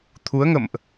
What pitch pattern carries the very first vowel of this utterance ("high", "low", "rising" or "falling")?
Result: rising